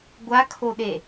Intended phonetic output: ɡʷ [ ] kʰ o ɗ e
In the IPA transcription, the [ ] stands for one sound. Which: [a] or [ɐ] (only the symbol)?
a